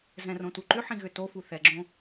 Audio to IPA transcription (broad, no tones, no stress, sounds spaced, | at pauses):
z ɛ̃ r õ t u ǃ ʏ ħ ĩ ɣ ʏ t o f u θ ɛ ɡ͡ǁ õ